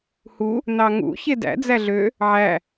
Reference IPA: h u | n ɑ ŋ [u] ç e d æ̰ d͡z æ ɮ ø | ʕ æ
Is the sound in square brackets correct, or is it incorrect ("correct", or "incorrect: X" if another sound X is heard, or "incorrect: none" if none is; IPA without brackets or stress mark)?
incorrect: ṵ